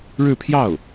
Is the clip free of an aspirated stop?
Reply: no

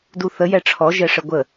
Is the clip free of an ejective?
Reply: yes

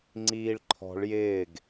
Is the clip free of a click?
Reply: no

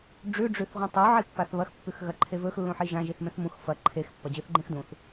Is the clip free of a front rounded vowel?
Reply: yes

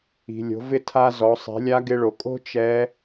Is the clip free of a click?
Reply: yes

